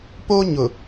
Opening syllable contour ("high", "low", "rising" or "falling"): high